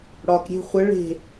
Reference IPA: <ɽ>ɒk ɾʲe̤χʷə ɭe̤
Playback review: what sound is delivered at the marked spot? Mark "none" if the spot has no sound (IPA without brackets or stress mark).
ɽ